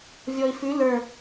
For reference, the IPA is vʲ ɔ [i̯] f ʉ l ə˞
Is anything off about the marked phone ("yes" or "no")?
no